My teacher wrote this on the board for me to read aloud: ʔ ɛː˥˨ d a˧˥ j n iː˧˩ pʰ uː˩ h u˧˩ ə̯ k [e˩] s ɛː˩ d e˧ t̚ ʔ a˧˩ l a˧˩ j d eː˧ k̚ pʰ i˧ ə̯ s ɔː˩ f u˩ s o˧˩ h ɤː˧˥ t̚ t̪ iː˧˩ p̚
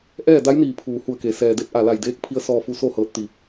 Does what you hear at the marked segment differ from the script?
no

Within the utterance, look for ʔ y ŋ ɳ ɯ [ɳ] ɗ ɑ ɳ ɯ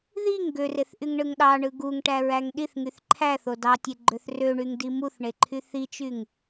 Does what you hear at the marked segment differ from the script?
yes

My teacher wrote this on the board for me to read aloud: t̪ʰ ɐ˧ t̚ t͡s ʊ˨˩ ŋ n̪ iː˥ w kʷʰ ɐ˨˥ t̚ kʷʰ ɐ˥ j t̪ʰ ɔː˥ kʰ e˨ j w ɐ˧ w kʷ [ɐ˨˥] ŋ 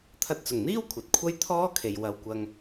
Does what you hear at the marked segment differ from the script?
yes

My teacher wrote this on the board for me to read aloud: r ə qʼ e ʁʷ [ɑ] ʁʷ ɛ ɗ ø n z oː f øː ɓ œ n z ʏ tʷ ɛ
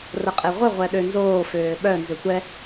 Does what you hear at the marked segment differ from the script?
yes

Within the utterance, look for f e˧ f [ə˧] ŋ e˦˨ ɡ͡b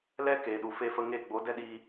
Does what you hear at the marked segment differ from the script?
no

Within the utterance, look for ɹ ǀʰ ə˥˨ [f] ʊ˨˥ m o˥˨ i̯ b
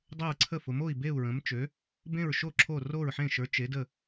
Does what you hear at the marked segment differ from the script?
no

